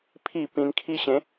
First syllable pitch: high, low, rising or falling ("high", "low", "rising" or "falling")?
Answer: falling